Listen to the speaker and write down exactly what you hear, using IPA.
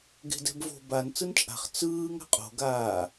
ɡe̤dɛ̤bvo̤ ban t͡sɯnt͡ʃʼa̤χ t͡sɯːŋ a̤qʼo̤ ɡaː

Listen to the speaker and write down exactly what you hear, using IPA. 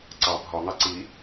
ǀɑ bʱɒŋɑ ǀi

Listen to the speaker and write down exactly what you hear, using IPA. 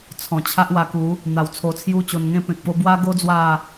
t͡sʰɔ̃˨˩t͡ɕʰa˦ʔwa˧ ku˨˦ | n̪a˧w t͡sʰo˧t͡sʰju˦t͡ɕo˧nŋẽ˥˧ pẽ˨k̚po˧ bwa˦ɡo˦ d͡zwa˥˧

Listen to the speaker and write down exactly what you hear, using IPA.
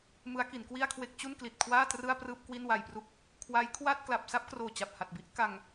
mɯ˦˥a̯ki˩˦nkwi˥˩a̯kʰwe˥˩k̚ t͡ɕu˥˩nkli˨˩t̚kʰwaː˥˩ trɯ˥˩a̯prɯː˥˩p̚ kwi˥˩nwa˧jpru˥˩k̚ | kʰwa˦˥j kʰwa˥˩t̚ kla˨˩p̚sa˥˩p̚kroː˨˩ t͡ɕa˨˩p̚ha˨˩t̚bi˥˩ʔ ka˧ŋ

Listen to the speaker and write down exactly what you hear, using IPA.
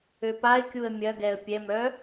øpaɪ̯kʲuə̯ mʲɐɡɛə̯ pʲɛmœ

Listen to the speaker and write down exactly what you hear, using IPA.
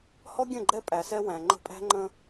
hɔ˦ɡʲə̃˦˨ɡ͡ǃɛ˦ pʼæ˨sɛ˦wæ̃˨ ŋ͡ǃə̤˦ pʼæ̤˦ŋ͡ǃə̃˦

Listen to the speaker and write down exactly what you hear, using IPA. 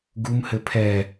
ɡumhɘ pʰɛ

